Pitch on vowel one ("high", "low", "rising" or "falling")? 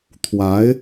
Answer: rising